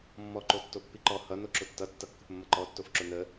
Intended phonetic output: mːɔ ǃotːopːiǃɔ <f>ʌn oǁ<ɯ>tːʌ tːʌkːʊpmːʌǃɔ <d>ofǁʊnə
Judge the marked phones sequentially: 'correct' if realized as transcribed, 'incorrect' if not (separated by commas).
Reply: incorrect, incorrect, incorrect